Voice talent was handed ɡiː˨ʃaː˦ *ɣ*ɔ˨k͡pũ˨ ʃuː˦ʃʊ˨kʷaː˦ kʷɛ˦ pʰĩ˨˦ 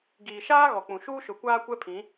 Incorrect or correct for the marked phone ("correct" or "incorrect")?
correct